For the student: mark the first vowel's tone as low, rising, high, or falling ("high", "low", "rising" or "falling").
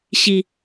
low